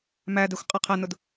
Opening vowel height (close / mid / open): open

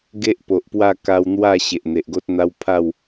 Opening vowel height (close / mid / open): mid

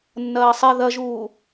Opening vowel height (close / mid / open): open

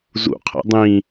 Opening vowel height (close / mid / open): close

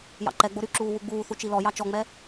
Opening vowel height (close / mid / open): open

